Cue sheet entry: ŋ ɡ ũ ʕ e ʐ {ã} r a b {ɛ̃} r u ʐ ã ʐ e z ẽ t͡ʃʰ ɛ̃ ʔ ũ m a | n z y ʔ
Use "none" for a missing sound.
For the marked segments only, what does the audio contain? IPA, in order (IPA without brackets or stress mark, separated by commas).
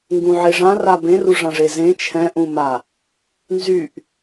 ã, ẽ